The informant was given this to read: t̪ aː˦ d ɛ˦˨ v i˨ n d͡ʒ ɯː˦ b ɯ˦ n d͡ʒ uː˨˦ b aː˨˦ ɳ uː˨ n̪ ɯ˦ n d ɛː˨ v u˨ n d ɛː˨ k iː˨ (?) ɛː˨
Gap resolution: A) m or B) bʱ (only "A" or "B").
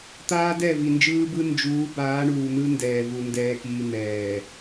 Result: A